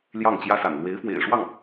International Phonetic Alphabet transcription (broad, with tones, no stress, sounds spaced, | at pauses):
l j ɑ˥˩ ŋ t͡ɕ j ä˥ s a̰˨˩ n l w e˧˥ ɪ̯ f w ḛ˨˩ ɪ̯ ʂ w ɑ˥˩ ŋ